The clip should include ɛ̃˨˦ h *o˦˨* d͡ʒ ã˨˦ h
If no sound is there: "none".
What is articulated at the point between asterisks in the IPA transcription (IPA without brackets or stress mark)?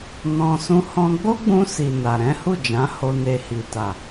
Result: u˦˨